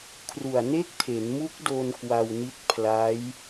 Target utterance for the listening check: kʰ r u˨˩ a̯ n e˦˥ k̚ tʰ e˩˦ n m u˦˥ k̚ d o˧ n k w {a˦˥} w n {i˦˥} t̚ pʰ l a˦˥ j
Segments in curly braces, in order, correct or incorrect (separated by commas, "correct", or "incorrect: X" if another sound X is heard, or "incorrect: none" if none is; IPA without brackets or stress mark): incorrect: a˧, correct